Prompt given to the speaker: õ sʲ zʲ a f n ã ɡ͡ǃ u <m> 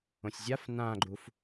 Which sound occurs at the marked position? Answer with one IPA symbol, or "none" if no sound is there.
f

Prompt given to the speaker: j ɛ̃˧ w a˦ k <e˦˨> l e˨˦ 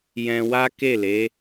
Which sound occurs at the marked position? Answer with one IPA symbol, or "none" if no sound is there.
e˦˨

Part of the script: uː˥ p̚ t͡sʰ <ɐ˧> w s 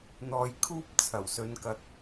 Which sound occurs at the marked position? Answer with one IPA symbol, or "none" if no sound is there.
ɐ˨˩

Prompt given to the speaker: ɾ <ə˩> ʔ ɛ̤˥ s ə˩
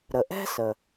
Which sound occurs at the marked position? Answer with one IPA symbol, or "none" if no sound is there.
ə˩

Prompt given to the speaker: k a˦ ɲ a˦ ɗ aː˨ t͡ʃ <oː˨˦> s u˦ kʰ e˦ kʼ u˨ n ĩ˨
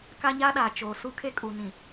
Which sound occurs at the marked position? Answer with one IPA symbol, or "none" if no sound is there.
oː˨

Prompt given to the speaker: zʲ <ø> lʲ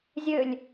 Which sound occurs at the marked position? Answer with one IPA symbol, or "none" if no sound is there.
ø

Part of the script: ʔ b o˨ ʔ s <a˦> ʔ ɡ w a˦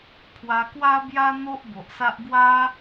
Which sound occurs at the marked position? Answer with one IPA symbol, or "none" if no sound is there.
a˦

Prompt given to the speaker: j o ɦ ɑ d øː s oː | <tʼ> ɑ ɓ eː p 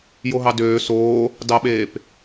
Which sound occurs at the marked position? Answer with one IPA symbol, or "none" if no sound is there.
d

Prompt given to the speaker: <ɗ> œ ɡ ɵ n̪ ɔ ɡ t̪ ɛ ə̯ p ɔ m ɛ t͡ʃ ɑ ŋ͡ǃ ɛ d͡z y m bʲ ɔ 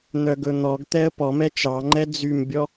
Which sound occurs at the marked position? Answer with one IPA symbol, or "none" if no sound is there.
n̪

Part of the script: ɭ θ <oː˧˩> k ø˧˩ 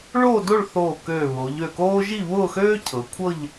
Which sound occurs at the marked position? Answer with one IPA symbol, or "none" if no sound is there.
oː˧˩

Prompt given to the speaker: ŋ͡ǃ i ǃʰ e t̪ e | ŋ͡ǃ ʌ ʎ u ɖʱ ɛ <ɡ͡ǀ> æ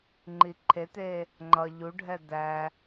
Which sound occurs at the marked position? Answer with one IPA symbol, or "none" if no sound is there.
d̪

